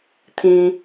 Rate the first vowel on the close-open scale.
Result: close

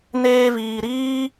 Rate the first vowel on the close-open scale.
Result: mid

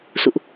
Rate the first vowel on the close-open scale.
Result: close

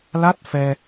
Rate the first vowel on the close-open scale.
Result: open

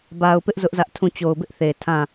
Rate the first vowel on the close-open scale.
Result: open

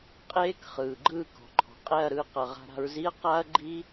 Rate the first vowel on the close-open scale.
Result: mid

